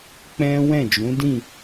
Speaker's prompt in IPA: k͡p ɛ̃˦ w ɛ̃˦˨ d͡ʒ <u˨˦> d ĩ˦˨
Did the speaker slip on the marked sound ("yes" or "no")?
yes